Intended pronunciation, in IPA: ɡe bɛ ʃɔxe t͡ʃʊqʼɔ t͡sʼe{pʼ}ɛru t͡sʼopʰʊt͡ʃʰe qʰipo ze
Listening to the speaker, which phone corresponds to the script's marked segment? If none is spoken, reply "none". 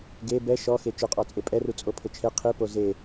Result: pʼ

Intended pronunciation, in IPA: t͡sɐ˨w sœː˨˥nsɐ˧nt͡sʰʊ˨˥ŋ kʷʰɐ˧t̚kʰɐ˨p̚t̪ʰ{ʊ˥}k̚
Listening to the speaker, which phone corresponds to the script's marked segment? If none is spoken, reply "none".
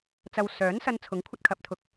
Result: ʊ˨˥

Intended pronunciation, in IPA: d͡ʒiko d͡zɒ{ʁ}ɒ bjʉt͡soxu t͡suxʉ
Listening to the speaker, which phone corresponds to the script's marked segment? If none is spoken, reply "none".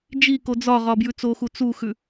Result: ʁ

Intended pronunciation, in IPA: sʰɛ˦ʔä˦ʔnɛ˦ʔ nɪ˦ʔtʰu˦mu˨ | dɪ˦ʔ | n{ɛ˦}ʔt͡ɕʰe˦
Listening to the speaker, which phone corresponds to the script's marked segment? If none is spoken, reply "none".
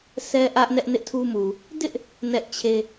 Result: ɛ˦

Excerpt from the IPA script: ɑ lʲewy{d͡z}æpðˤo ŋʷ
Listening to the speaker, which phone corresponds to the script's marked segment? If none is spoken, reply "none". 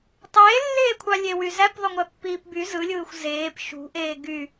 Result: z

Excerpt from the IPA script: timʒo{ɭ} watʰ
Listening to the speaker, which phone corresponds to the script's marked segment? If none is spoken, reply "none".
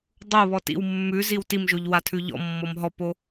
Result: ʎ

